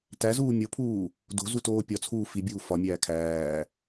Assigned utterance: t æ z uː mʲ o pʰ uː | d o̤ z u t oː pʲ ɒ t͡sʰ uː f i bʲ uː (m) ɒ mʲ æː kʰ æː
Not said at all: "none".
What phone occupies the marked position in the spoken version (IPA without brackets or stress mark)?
f